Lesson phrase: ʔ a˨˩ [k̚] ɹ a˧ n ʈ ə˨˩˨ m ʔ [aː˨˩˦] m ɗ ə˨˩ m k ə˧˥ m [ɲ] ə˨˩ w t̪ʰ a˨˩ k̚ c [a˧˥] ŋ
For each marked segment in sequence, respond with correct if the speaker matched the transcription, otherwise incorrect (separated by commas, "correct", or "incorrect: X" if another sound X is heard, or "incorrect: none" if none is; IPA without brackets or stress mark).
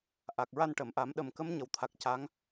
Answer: correct, incorrect: a˨˩˦, correct, correct